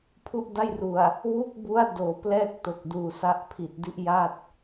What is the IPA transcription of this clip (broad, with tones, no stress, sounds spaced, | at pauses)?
pʰ u˥˩ ʔ d a˥˩ j r u˨˩ a̯ | w u˥˩ k̚ b u˦˥ a̯ d oː˩˦ p l ɛː˥˩ k̚ t o˨˩ k̚ d uː˨˩ s a˦˥ ʔ pʰ i˨˩ t̚ d i˥˩ ʔ j a˥˩ t̚